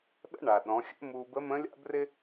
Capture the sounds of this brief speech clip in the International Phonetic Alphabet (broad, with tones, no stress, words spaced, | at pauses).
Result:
ɗə̰˥ɳa˩ ɗɔ̃˩˧xʲə̰˥muː˧ bə˧˥mə̃ː˧˥lʲa̰˥ brɪ˥